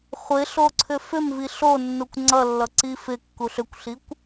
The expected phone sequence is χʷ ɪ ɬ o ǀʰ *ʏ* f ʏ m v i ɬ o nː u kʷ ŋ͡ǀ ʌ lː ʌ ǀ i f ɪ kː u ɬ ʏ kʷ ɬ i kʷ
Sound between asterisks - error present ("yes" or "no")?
no